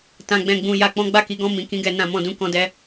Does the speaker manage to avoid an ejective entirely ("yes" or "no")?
yes